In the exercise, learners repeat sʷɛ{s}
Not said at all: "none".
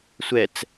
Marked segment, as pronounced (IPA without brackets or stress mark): t͡s